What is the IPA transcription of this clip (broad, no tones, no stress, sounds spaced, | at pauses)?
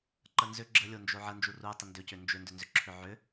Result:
ǃ ə n z ʏ ɡ͡ǁ ə lʲ o n d͡ʒ o ʕ ə n d͡ʒ u r u tˤ ə n d ʏ c ʏ n d͡ʒ ʏ n d ʏ n z ʏ ǁʰ ʏ ʕ ʏ